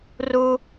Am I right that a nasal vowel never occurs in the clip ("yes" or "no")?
yes